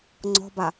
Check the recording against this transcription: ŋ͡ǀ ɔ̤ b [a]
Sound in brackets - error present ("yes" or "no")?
no